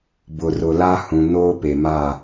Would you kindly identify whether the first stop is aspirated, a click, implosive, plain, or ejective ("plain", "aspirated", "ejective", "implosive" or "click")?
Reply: plain